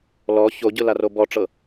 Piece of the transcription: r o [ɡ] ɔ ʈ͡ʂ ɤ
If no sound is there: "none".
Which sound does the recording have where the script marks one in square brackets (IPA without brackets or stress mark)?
b